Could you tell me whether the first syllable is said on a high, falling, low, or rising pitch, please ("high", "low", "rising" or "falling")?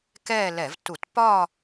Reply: falling